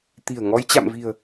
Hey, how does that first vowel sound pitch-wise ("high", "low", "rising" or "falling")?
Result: low